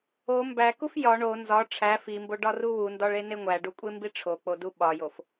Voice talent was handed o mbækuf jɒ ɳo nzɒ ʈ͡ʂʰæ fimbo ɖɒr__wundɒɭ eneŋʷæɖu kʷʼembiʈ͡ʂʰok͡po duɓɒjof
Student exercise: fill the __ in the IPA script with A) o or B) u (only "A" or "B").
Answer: B